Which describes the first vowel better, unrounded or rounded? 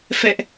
unrounded